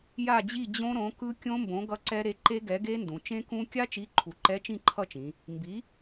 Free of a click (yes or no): no